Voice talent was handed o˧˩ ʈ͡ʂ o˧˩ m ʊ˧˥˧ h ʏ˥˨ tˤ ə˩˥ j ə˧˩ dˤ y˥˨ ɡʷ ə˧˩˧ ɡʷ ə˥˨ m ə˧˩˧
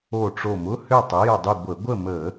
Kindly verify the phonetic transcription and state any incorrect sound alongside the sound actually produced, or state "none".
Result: none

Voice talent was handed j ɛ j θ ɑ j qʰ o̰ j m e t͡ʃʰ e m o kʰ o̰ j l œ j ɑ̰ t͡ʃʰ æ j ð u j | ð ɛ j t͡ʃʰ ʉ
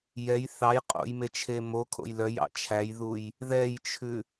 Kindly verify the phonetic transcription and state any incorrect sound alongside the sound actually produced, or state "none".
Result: qʰ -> qʼ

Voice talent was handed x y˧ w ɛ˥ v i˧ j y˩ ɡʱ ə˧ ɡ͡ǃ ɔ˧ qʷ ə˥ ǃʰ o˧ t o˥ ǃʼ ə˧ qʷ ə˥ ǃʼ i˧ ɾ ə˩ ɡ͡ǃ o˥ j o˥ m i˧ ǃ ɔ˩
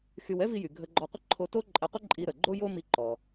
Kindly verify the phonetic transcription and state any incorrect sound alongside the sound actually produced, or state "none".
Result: none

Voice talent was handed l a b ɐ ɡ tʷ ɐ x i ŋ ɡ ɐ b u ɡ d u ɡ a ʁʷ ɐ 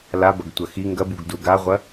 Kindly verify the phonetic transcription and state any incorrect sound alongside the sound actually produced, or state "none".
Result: none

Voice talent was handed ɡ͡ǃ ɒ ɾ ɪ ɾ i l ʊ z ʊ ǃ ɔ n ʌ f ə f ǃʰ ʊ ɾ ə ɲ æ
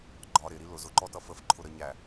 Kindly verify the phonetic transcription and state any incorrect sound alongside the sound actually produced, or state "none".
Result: n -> t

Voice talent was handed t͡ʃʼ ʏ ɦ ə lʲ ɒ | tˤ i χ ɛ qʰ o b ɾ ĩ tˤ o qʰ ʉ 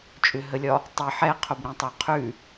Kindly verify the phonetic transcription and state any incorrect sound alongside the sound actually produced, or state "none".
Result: χ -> ħ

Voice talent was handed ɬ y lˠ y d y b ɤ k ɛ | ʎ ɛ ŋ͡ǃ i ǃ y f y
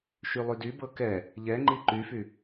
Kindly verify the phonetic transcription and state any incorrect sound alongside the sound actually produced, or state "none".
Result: ɬ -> ʃ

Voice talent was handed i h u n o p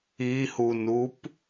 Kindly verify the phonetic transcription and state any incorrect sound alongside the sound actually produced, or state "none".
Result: o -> u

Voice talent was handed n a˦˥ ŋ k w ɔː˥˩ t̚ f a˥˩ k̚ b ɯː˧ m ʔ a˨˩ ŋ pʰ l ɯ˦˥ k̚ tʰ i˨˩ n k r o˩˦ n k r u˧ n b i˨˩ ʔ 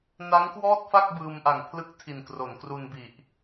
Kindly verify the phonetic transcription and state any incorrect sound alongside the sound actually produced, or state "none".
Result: none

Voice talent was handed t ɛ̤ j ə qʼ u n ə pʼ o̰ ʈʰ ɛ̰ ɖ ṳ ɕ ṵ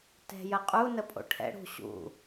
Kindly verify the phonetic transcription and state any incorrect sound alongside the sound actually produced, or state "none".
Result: ɖ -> ɽ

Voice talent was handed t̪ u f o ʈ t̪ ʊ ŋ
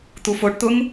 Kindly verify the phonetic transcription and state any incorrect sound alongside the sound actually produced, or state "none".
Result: none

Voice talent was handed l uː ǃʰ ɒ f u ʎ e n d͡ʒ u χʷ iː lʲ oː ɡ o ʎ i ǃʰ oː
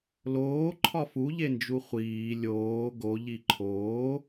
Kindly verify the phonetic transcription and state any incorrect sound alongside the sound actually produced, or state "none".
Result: uː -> oː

